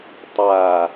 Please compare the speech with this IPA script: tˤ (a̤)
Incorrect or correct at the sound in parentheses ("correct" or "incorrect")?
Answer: incorrect